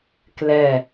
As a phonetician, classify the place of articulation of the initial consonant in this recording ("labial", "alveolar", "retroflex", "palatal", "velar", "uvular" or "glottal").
velar